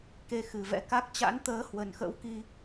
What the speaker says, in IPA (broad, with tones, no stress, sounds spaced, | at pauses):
k e˧ x ɨ˨˩ v ɛ̰˧˥ k a˦˥ k̚ t͡ɕ a̰˧˥ n t̪ əː˨˦ h w ə˨˩ n x ə̰˧˥ w k i˧